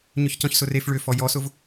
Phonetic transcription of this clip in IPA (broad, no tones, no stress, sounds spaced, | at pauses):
ɲ ʏ ç c ɔ̃ ç s ʊ r e f ɭ ʏ f ɔ j ɔ s ʊ v